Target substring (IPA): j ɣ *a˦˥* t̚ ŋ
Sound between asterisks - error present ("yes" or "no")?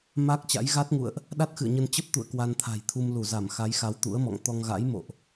no